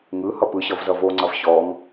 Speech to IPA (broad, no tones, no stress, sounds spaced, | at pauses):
ŋ ɯ h ʌ p ɯ ɕ ʌ v z ʌ v o ŋ͡ǀ ʌ v ɕ ɔ ŋ